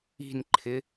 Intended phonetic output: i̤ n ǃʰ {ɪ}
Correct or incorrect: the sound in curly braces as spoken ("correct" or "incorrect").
correct